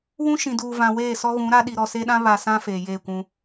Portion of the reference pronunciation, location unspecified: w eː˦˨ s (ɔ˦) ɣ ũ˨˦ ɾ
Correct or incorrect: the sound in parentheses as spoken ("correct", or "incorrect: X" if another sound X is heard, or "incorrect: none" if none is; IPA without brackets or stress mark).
correct